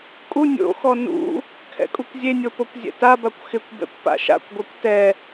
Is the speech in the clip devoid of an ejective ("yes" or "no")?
no